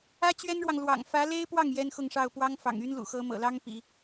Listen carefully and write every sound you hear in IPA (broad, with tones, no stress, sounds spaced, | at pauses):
ä˥ t͡ɕ ɥ ɛ˥ n ɻ w ɑ˨ ŋ l w ɑ̰˨˩ ŋ f ä˧˥ l e˥ ɪ̯ p w ɑ˥˩ ŋ j ɛ˥ n x ʊ˥˧ ŋ ʂ ɑ˥˩ ʊ̯ p w ɑ˥ ŋ f ɑ̰˨˩ ŋ y˥ n l ṵ˨˩ x ɤ˧˥ m ɤ̰˨˩ l ɑ˥ ŋ p ḭ˨˩˦